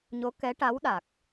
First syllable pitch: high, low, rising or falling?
rising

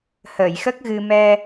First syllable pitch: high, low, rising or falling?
low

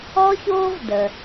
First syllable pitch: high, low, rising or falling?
high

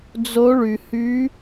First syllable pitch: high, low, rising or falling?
rising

